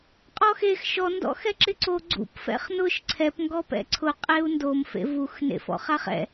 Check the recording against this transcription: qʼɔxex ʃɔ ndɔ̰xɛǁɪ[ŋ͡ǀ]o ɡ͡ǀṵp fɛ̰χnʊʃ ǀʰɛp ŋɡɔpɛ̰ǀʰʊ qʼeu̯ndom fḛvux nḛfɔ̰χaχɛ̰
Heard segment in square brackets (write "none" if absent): ǀ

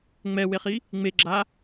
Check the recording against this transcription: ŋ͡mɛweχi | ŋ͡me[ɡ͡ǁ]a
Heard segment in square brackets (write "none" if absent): ɡ͡ǁ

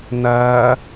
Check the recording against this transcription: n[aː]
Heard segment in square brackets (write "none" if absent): ɐː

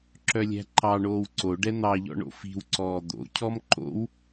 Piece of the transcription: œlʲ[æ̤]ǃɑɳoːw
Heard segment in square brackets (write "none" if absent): æ̤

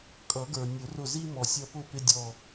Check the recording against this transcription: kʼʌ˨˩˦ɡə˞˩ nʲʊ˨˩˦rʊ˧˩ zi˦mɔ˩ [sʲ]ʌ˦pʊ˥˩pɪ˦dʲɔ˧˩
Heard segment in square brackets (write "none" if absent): sʲ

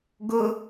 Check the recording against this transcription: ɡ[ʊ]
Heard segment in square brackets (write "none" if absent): ʊ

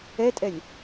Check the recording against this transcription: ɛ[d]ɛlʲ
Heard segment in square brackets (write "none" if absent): tʼ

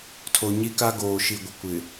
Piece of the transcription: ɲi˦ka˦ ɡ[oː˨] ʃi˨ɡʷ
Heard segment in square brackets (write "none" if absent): oː˨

